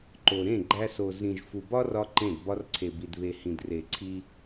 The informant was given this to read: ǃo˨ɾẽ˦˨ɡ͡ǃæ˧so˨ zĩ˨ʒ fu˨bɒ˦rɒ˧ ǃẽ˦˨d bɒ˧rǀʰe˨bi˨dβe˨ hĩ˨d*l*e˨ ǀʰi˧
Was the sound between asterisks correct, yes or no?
no